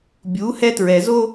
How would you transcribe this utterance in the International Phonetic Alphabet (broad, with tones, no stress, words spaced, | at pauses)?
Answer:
bʲu˨˦ hɛ˦tɹɛ˨zo˦